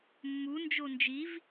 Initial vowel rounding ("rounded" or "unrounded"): rounded